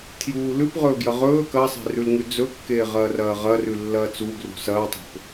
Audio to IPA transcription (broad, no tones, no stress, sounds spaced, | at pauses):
tʰ j uː l ʉ p ʁ ɵː ɡ j ɐ ʁ ɵː k ɐ sˤ e̤ r ʉ l ŋ ʉ d͡z ɵ kː eː ʁ ɐː r ɐː ʁ ɐ r ʉ lː ɐː t͡s u ɡ r ṳ s ɐː tˤ e̤ p